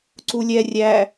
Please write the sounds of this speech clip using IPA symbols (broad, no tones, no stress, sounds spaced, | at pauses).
ǀ u lʲ ɛ rʲ æ